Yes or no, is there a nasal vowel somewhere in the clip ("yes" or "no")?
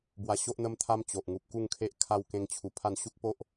yes